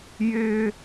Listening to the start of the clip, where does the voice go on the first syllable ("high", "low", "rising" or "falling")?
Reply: high